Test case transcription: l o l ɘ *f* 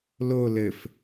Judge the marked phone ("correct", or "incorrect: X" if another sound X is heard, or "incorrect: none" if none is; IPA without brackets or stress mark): correct